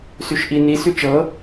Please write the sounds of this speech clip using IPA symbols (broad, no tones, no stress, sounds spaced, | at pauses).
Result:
s y ʃ ʔ i n i s y t͡ʃ ɤ